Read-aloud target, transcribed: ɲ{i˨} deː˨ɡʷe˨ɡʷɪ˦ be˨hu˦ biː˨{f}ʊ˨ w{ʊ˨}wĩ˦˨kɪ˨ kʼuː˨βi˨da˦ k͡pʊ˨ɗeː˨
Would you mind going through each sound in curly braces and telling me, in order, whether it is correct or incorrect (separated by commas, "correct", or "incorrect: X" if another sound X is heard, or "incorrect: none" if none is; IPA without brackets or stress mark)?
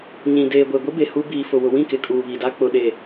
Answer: incorrect: ĩ˨, correct, correct